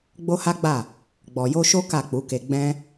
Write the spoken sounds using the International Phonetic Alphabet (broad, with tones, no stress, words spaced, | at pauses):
ɡ͡bo˦ha˦ɡ͡ba˦˨ | ɡ͡bɔ˨jo˧ʃo˦ ka˦˨k͡pu˨˦ke˧ ɡ͡bɛ̃˦